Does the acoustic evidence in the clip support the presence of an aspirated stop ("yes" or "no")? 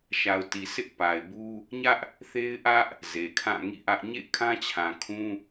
yes